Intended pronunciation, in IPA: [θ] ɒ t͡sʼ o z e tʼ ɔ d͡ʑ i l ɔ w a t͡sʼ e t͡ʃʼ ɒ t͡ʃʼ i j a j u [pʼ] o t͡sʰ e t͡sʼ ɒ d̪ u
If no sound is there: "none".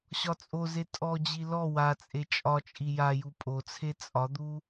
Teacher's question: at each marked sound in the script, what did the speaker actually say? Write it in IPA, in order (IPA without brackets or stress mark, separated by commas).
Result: ɕ, pʼ